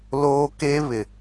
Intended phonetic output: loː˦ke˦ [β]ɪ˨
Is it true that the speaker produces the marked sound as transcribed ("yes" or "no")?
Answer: yes